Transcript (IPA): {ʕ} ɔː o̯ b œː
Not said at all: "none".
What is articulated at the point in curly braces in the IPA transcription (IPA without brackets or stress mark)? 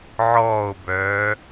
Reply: ʕ